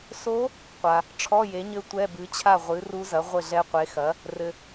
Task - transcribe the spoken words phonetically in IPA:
s o˧˥ | qʷ a˩ | ʈ͡ʂʰ ɔ˧˥˧ j e˩˥ ɲ ɘ˧˥ tʷ ɛ˧˥˧ b ɨ˩˥ t͡ɕʰ a˥˩ ʁʷ ɨ˩˥ r u˧˥ z ɐ˩˥ ʁʷ ɘ˥˩ ɮ ɛ˧˥ qʷ e˩˥ x ɐ˩˥ | r ɘ˩

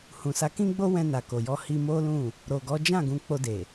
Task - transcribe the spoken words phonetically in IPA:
h ũ˨ s a˨˦ k ĩ˦ ɡ͡b o˦ w ɛ̃˧ n a˨ k o˨ j ɔ˧ h i˧ m o˦ l ũ˦˨ | ɾ o˨ ɡ ɔ˨˦ d͡ʒ ã˦˨ ɡ ũ˨˦ k͡p o˧ d e˨

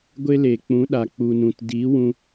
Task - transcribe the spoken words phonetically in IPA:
ɡʷ e˦ l e˨ k͡p ũ˨˦ ɗ a˨ k͡p u˨ n ũ˨ t d i˨˦ w ũ˧

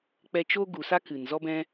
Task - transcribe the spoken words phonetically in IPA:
k͡p ɛ˧ t͡ʃ o˦ ɡ u˨ s a˦ k ɨ˨ n z ɔ˦ b ɛ̃˦

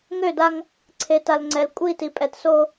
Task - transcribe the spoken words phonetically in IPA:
ŋ ø˦˨ d a˦ ŋ | ǀʰ e˨ t a˨ l ŋ͡ǀ ɛ˨ l kʷʼ i˦˨ t i˨ pʼ ɛ˨ t s o˦

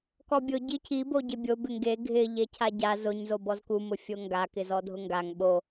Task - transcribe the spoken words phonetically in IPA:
k ɔ bʲ ʊ ɟ i cʰ i b o ɟ ɪ bʲ o b ɪ ŋ ɡ e ɡʱ ɪ ʎ e cʰ a ɟ a z ʊ ɲ z o b ɔ z k u m ʊ fʲ o ŋ ɡ a k ɪ z ɔ dʱ ʊ ŋ ɡ a ŋ ɓ o

